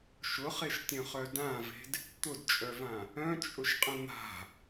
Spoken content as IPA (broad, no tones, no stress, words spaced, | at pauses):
ʃʊχeʃtʲœ̃χœ dãve̤d | t̪ʊdt͡ʃʼœvã | œ̃t͡ʃʼʊʃqʼə̃ n̪a̤